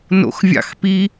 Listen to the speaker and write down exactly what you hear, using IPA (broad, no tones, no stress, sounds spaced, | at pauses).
n o̰ x vʲ ɑ̰ x p i